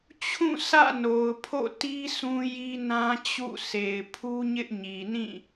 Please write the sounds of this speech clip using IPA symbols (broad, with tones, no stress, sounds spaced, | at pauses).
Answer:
t͡ɕʰ ũ˦˨ sʰ ä̰˦˨ n o˨ ʊ̯ pʰ o̰˦˨ t i˦ sʰ ũ˦ j i˦ n ã˦ t͡ɕ ṵ˦˨ s e˨ ɪ̯ pʰ u˦ ɲ ɪ˦ ʔ ɲ i˨ n ĩ˦˨